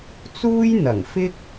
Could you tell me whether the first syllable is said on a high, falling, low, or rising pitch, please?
high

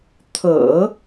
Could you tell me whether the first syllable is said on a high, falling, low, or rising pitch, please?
low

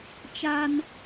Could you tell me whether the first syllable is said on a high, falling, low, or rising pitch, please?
high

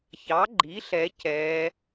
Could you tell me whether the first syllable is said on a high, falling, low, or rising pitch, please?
rising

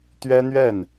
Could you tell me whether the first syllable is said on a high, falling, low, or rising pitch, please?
high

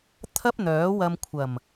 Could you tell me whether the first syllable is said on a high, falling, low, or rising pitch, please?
high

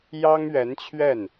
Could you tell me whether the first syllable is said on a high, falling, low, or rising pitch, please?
high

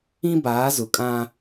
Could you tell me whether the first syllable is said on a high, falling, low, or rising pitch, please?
high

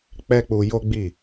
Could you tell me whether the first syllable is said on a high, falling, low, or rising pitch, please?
high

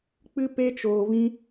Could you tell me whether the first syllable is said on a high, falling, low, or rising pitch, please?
high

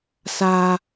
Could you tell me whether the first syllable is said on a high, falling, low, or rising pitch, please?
high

